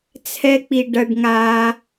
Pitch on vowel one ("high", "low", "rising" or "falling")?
high